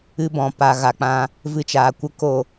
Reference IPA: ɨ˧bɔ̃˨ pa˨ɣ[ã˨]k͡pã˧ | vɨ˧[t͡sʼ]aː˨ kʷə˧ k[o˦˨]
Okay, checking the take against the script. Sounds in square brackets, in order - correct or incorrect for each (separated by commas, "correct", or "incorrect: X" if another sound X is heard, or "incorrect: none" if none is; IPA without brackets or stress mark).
incorrect: a˨, incorrect: t͡ʃ, correct